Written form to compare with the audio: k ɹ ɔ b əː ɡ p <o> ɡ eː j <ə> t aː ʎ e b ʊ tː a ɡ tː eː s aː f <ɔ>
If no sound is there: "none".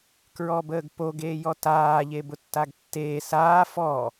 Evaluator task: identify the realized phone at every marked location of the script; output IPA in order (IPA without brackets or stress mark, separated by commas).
o, ɔ, ɔ